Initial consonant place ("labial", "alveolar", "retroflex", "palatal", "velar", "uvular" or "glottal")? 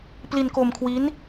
labial